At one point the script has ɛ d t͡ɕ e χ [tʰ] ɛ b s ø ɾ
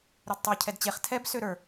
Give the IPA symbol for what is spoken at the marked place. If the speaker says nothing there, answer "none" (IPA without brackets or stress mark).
tʰ